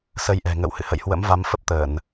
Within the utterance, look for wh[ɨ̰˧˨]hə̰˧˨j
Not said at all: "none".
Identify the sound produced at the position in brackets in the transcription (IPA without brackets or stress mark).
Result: ɨ̰˧˨